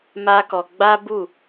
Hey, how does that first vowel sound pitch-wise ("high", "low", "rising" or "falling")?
high